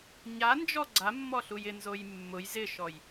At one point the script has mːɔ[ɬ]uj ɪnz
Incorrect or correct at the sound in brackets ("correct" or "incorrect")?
correct